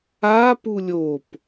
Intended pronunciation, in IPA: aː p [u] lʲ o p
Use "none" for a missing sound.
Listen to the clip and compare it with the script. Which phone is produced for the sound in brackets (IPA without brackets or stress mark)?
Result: u